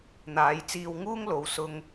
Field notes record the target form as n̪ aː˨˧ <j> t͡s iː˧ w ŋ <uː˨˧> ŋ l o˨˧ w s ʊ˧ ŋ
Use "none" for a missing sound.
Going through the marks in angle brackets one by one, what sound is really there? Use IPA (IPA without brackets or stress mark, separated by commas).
j, uː˥